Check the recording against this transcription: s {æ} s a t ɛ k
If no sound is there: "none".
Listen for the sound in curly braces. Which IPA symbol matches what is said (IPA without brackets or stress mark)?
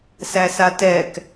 æ